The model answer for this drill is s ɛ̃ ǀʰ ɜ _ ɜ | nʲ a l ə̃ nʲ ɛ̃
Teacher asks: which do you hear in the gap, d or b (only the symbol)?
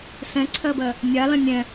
b